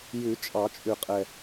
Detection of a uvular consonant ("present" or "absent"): present